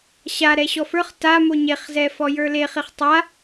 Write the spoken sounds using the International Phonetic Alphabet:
ɕa ɾɛɕɔfə˞χ tamo ɲeχzɛ fɔjə˞leχiχ tˤa

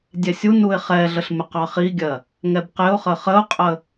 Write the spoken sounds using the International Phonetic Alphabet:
dʲɛsʲunuɪ̯ χɛɮəɬ mɪqɑχiɡʲɜ | ŋɛbqɪʊ̯χə χəʊ̯qʼə

